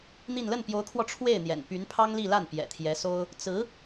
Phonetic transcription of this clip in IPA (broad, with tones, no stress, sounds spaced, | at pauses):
n̪ i˥˧ n l ə˥˩ n p j o˧˥ ʊ̯ kʰ w ɔ˧ ʈ͡ʂʰ w e˥˩ ɪ̯ n̪ j ɛ̰˨˩ n p y˧˥ n pʰ ɑ˥ ŋ l i˥˧ l a˥˩ n p j ɛ̰˨˩ t̪ʰ j ɛ˧˥ s o˥ ʊ̯ | t͡s ɹ̩˧˥